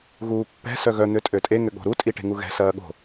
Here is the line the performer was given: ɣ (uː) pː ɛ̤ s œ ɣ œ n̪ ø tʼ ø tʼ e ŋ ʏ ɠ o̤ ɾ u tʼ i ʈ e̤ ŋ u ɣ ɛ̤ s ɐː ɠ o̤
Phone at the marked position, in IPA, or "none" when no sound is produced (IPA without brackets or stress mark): uː